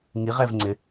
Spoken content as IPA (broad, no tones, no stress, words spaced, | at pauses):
ŋiʁɛv ŋ͡ǀɪ